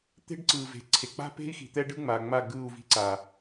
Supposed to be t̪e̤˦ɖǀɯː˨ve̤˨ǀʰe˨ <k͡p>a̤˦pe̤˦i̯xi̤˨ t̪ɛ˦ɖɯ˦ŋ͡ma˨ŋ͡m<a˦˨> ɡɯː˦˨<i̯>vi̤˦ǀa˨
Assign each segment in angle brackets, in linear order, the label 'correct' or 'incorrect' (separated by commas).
correct, correct, incorrect